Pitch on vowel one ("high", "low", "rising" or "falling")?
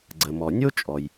low